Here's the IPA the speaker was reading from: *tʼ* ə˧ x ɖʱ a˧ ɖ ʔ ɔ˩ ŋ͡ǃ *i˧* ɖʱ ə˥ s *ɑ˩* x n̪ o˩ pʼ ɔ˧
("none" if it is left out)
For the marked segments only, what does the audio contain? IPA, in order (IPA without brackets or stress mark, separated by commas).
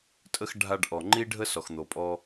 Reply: tʼ, i˥, ɔ˩